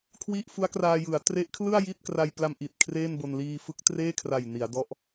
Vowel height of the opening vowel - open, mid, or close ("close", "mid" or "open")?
close